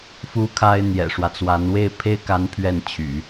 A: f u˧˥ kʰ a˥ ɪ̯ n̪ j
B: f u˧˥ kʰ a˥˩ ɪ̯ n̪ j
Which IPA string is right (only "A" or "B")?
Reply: A